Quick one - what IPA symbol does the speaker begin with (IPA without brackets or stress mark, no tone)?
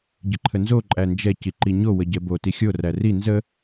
ɟ